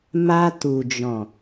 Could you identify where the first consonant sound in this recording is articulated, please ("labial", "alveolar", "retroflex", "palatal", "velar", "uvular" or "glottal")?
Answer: labial